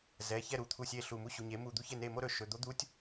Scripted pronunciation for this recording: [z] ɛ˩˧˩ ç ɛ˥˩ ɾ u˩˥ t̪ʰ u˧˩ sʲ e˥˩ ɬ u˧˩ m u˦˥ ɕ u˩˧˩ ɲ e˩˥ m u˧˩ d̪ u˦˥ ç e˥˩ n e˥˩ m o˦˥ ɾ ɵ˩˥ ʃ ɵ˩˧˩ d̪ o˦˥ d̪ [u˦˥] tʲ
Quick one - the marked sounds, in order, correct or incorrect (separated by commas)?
correct, correct